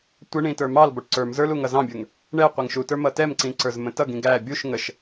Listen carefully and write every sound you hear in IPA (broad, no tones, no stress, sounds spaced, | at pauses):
tʷ ə ɳ ĩ t ə˞ m ɑ l b ɔ ʈ ǀ ə˞ m z ə˞ l u ŋ ʌ z ɑ̃ bʲ ə˞ ŋ | ɳ ɛ qʷ ɛ ŋ ʃ u t ə˞ m ʌ t ɛ m ǀ ĩ ǀ ə˞ z m ə̃ t ʌ ɡ ĩ ɡ æ bʲ u ʃ ŋ ə ʃ